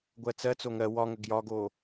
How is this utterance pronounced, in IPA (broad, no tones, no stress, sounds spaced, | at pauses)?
ɡʷ ɜ t͡s ɜ t͡s o ŋ ɜ w ɒ ŋ ə ɡ j ɒ ɡ o